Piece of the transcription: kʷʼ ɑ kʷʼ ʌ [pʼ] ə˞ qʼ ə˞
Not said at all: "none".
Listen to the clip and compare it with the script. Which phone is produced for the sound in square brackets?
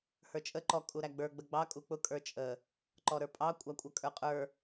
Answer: kʼ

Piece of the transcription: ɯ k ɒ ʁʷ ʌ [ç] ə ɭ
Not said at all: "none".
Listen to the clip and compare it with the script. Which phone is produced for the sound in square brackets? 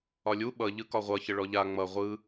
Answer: ç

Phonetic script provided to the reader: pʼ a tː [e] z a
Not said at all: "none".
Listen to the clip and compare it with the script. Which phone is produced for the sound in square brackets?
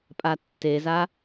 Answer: e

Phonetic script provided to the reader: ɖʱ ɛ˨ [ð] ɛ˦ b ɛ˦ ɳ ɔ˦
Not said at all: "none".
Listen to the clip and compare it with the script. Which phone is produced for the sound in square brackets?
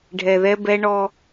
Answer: ð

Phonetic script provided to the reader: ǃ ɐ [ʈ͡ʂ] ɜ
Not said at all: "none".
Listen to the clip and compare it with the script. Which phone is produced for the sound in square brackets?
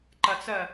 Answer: t͡s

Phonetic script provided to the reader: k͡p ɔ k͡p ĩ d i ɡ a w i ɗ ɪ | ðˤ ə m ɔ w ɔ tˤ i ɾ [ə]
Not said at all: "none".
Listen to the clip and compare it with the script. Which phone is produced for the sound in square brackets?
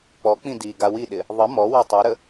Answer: ə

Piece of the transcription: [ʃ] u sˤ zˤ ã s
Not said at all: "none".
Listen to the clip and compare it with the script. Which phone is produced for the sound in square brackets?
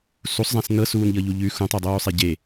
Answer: s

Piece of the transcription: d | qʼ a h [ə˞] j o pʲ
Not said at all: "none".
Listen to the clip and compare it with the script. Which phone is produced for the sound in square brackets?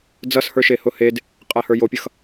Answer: ə˞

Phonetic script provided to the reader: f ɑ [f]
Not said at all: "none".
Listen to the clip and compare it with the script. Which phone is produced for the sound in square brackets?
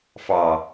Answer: none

